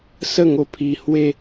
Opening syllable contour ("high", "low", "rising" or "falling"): falling